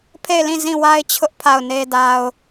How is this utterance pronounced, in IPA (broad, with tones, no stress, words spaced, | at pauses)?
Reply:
pʰe˦˨ɪ̯lĩ˦˨ zĩ˦˨wa˦ɪ̯t͡ɕʰʊ˦ʔ pʰa˦˨ʊ̯ne˦da˦ʊ̯